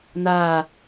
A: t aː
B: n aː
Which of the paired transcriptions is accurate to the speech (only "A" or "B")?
B